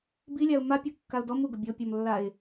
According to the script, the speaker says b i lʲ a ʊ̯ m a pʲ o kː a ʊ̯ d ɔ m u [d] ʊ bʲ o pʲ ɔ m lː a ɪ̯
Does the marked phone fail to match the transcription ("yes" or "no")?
yes